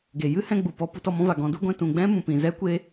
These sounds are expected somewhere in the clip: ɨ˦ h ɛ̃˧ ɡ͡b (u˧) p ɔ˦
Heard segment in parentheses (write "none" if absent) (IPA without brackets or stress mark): u˨